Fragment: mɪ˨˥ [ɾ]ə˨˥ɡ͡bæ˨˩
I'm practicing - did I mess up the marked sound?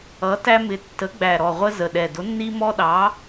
yes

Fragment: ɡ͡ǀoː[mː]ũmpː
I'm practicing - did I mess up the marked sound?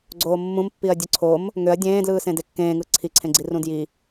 no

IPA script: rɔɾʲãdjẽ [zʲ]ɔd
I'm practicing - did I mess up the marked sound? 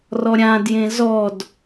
yes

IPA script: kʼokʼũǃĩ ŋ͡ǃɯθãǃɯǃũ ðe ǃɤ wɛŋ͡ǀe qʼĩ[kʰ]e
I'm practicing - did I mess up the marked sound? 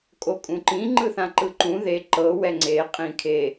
no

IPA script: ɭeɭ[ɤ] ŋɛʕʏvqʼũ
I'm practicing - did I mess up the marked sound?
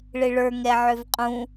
yes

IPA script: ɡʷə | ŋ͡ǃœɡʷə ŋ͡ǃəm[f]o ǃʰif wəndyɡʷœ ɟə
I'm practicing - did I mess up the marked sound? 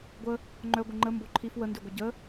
yes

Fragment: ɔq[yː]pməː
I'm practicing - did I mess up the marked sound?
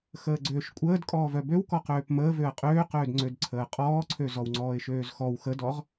yes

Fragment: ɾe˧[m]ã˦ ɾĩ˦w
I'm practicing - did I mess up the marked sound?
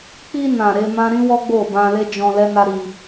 no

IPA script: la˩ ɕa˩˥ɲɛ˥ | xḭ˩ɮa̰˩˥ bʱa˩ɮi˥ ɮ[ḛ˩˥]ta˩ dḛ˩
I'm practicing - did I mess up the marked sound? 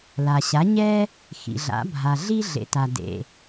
no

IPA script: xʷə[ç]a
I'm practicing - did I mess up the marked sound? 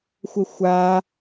yes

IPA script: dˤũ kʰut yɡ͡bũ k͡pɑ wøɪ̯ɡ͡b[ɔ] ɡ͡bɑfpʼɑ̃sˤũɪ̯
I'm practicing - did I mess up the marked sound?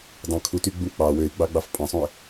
yes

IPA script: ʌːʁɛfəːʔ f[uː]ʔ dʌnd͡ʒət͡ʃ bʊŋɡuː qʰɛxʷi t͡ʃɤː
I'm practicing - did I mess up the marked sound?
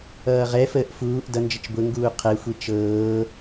no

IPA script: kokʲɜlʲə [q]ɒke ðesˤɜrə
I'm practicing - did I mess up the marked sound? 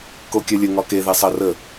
yes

